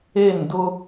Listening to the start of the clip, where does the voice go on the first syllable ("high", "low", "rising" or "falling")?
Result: falling